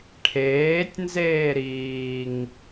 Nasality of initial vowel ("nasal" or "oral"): oral